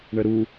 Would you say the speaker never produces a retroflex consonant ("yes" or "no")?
no